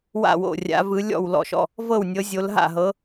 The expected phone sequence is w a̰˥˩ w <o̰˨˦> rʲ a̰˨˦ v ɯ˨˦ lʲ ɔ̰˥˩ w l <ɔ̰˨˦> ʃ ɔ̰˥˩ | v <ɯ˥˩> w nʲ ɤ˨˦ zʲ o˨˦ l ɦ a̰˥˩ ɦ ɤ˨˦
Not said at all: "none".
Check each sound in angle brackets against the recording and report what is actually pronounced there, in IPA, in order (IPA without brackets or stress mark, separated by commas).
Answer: o̰˥˩, ɔ̰˥˩, ɤ˥˩